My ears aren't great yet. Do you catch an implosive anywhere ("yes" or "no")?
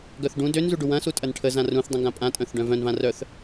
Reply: no